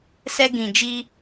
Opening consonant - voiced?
no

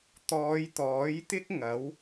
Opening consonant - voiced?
no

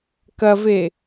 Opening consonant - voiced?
no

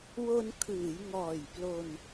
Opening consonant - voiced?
yes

